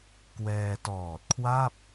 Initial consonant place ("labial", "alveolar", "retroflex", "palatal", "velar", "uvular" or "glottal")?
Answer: velar